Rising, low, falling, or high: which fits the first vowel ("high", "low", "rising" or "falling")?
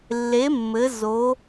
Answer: rising